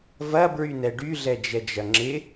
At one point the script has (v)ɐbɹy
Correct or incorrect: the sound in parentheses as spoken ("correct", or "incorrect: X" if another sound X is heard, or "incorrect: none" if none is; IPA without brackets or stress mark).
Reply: correct